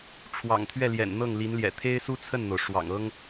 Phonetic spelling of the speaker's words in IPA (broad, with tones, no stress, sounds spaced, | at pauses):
ʈ͡ʂʰ w ɑ̰˨˩ ŋ t̪ʰ ɥ ɛ˥˩ l j ɛ̰˨˩ n n̪ ɤ˥˩ ŋ l i˧˥ n l j ɛ̰˨˩ t̪ʰ e˥ ɪ̯ s u˥ t͡sʰ ə˥˩ n n̪ o˩ ʊ̯ ʂ w ɑ̰˨˩ ŋ ɤ˥ ŋ